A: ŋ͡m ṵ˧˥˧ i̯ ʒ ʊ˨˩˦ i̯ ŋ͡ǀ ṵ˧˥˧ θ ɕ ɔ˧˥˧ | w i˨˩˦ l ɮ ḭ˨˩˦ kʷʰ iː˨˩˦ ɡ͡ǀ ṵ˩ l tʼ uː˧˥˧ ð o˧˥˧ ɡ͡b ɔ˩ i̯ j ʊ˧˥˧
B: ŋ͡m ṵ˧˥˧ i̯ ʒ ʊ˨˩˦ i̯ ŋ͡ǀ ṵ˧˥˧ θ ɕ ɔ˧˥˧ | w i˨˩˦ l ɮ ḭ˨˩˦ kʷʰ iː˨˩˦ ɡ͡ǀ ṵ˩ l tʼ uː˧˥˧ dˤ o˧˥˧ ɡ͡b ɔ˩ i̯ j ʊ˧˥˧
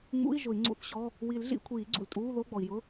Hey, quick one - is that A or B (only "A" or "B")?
A